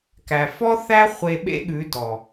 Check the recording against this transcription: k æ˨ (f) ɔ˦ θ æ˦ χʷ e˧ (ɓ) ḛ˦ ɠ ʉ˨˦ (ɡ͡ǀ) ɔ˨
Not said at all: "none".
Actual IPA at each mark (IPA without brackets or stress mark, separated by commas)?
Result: f, ɓ, d